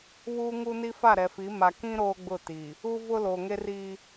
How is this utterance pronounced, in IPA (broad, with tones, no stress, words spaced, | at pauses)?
βuː˦ŋu˦ni˦ fa˦˨ɾɛ˨fi˨˦ ma˨ kĩ˦ ɾoː˦ɡ͡bʊ˦˨ ti˨ | u˦vʊ˦ loː˨ŋe˦riː˦